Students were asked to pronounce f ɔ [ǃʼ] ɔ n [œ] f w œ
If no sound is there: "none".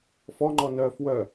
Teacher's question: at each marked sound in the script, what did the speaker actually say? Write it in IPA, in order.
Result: ŋ͡ǃ, œ

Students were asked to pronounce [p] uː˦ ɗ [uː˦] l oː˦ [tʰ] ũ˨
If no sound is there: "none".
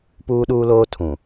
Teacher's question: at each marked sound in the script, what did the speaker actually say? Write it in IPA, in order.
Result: p, uː˦, tʰ

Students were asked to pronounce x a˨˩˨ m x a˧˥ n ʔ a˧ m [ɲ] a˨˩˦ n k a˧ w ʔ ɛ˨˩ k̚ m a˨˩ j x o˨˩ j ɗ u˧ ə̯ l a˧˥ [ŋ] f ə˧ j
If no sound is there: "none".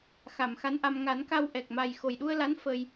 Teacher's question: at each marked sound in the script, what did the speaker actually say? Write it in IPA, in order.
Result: ŋ, n

